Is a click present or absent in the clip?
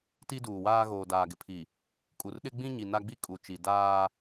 absent